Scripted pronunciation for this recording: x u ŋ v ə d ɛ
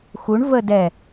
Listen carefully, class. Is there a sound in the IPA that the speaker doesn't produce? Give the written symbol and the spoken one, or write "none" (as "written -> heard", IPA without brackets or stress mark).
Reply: ŋ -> ɳ